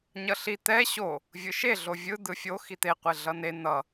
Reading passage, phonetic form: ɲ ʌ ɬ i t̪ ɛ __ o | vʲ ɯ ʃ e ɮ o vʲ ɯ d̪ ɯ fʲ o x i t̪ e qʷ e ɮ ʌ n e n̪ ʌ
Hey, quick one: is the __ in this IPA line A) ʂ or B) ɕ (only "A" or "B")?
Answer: B